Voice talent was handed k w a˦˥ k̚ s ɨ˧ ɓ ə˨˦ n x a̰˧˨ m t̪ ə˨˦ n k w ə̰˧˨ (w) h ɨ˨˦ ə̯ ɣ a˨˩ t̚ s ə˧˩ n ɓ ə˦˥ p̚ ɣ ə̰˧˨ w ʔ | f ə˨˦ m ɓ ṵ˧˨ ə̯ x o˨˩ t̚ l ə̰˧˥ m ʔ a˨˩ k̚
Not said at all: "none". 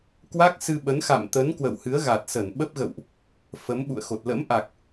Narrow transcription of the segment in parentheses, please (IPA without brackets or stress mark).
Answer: w